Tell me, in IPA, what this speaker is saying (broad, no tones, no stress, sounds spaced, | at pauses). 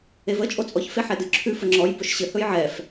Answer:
e v ə t͡ʃʼ o t͡sʼ ɔ ç f e ħ ɛ d ɨ ǁʰ ʉ f ə ŋ͡ǁ ɔ j b ɵ ʃ ɕ ɘ h ɵ j ʕ ɛ f